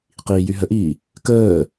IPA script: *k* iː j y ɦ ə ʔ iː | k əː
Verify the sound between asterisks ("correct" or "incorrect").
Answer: incorrect